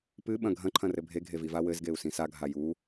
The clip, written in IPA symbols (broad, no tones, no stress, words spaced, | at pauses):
pɨɓɐ̃ ɡʱɐ̃ǃʰɐ̃rɘ bʱeɡʱeviva wɘzɡeu̯sĩ saɡʱa ju